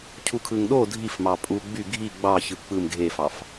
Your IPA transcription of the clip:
cʰ u kʰ ɯ ŋ ɗ o dʱ i f m ɑ pʼ u ɡ͡b y ɡʱ i ɡ͡b ɑ ç ɯ k͡p ɯ m ɡʱ e f ɑ f

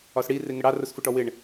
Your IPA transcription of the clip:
ɒ s ɽ i r ɪ ŋ ə ɽ ɑ r ʊ s f ʊ ʈ ɔ w ɪ ɳ

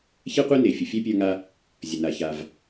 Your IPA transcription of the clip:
ç ɛ˥ qʷ e˥ n e˩ fʲ ə˩ fʲ ɛ˥ pʲ ə˞˧ ŋ a˧ | zʲ ə˩ n a˩ ç a˩ v

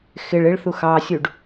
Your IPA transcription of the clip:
x ɪ ɭ ɪ ɭ θ u x ɑ sʲ u ɖ

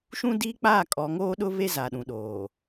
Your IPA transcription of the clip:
ʃ ũ˦ d iː˦ k͡p aː˦˨ kʼ ɔ˨˦ ŋ oː˦ ɗ ʊ˦ β e˦ z a˨ ɗ ũ˨ ɗ oː˨

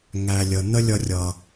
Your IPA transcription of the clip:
ŋ æ˨ lʲ ə˨ n̪ ə˦ lʲ ʌ˧ rʲ ʌ˨

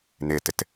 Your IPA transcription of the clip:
n ɪ t ɪ t

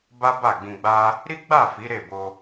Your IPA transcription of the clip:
b a˦ b a˦˨ ɡ͡b ĩ˧ ɡ͡b a˦ | ɾ i˦ ɡ͡b a˦˨ f i˨˦ ɾ e˦˨ b o˧

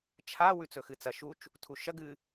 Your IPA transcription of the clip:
t͡ʃʰ a w ʉ t͡s ɵ x ɨ t͡s ɐ ʃ u t͡ʃ | tʰ u ʃ ɐ ɡ ɨ

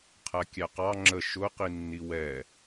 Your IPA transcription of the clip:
qʰ æ kʲ æ q ɑ ŋ͡ǁ ə ʃ ʊ q i nː i w ɛ

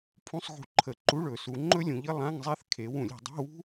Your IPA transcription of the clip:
pʰ ũ˧˥˧ sˤ ɣ ṳ˧˩˧ ǃʰ ə˧˩˧ ǃ u˧˥˧ ɭ ɵ˧˩˧ s u˩˧ ŋ͡ǃ ɵ˥ lʲ ũ˩˧ ʎ ə˥ lˠ ã˧˥˧ ŋ zˤ ɛ˥ θ kʰ e˩˧ w ũ˧˩˧ lʲ i̤˧˩˧ dˤ i̤˧˥˧ w ṳ˥

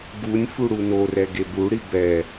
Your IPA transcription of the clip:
ɡ u nʲ f u ɽ u n o r ɛ ɡ e b u ɽ i b ɛ

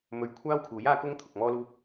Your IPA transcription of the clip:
m ɵ˧ ɥ kʷʰ aː˥ w kʰ uː˨˥ j aː˥ k ʊ˥ ŋ t̪ʰ ʊ˨ k̚ m ɔː˥ l uː˥ k̚

